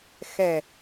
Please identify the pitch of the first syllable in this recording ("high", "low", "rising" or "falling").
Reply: low